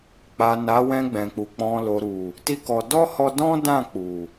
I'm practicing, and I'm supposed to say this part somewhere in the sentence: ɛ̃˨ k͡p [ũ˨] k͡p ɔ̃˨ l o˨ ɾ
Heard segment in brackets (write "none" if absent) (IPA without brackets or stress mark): u˨